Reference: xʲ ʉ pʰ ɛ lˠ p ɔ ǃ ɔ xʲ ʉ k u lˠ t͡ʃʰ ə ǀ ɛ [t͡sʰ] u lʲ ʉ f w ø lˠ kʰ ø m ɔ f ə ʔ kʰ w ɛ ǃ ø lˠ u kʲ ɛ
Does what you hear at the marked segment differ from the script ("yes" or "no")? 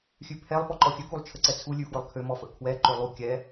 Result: no